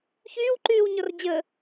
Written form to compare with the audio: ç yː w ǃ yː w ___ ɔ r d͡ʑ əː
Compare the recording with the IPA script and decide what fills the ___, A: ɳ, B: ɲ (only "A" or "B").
B